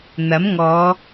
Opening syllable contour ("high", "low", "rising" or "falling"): rising